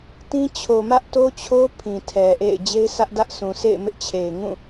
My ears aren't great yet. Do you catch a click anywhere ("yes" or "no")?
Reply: no